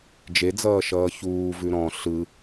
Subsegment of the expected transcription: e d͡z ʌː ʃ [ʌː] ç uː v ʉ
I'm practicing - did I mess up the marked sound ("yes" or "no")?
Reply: no